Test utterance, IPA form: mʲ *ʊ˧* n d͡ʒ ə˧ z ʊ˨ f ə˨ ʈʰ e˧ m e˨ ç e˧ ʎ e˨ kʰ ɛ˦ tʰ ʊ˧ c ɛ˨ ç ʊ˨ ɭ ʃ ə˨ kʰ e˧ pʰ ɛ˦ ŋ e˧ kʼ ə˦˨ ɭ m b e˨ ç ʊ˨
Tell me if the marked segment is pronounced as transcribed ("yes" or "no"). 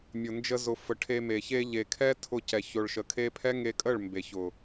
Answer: no